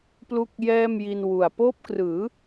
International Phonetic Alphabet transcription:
p l u˥˩ k̚ j ɛː˥˩ m j i˧ n w u˨˩ a̯ p oː˦˥ p̚ k r ɯː˩˦

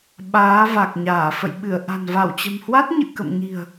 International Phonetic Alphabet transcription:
ɓ aː˨˦ v a˨˩ k̚ ɲ aː˧˩ f ə̰˧˨ j ɓ ɨ˧˩ ə̯ ʔ a̤˨˩ n v a˧˩ w t͡ɕ ə̤˨˩ m h w a˦˥ t̚ ɲ ɨ̰˧˨ k ə̰˧˨ m ɲ i̤˨˩ ə̯

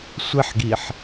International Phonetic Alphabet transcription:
sʷ ɪ ħ ɡ i ħ

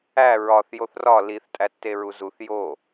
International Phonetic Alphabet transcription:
æ ɹ ɒ θ j o θ r ɒ l i θ tʼ æ tː e ɹ u z u θ j o

